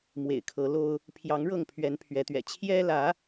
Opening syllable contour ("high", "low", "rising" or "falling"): low